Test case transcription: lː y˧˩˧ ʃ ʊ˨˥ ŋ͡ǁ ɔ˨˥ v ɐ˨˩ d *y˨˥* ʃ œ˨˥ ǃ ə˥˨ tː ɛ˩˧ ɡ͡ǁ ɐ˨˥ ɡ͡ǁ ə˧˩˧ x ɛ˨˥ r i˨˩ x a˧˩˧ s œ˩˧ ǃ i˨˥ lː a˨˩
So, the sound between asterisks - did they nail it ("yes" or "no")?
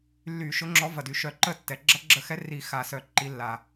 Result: no